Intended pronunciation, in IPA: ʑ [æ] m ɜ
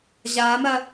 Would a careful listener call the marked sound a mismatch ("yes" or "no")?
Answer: yes